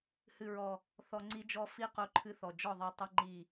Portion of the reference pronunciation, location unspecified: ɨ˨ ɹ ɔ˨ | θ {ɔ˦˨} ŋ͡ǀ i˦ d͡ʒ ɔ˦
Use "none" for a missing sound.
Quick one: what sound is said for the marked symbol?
ɔ˨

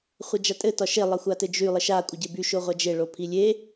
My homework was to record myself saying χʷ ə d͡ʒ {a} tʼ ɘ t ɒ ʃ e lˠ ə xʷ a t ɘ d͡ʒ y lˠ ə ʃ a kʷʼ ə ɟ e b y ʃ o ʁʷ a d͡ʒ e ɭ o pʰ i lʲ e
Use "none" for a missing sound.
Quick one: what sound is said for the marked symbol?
a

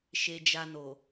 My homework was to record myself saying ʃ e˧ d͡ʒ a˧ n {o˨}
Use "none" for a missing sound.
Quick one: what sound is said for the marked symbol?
o˨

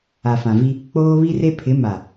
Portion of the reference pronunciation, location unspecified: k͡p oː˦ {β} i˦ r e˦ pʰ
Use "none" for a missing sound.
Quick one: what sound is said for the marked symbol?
β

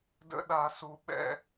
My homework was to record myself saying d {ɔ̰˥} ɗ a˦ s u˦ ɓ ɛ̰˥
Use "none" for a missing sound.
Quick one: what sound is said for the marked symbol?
ə̰˥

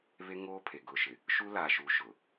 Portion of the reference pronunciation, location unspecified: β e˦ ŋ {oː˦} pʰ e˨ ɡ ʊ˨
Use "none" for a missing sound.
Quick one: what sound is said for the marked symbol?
oː˦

